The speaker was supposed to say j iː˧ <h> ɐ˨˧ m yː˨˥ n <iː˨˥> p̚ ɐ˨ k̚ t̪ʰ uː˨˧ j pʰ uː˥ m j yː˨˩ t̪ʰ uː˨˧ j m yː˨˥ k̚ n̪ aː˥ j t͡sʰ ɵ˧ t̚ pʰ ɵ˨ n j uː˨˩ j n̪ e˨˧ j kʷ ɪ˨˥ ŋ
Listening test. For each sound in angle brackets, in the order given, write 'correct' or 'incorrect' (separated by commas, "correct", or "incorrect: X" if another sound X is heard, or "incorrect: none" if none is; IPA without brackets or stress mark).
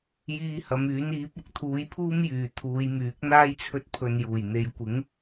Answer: correct, correct